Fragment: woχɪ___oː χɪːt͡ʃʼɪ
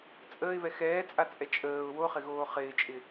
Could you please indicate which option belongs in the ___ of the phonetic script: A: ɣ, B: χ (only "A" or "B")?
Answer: A